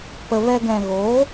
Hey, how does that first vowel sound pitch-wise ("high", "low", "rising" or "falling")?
low